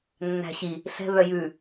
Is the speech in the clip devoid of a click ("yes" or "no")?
yes